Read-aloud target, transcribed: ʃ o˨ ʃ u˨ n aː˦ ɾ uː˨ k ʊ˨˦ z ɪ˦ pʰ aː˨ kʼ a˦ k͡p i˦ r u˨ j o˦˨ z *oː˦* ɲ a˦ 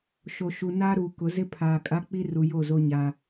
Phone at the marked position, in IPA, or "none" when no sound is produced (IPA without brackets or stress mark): o˦